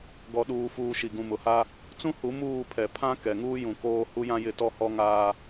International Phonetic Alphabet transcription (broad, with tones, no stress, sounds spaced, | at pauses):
ɡ ɔ˨ ɗ uː˨ f uː˨ ʃ i˨ ɡ ũ˨ m ʊ˨ h a˦ | t͡s ũ˦ h u˨˦ m uː˦˨ pʰ ɛ˨ pʰ ã˦ k ɛ˨ ŋ uː˦ j ũ˨ k oː˦ h u˦ j ã˦ j ɪ˦˨ t ɔ˦ h ɔ˦ ŋ aː˦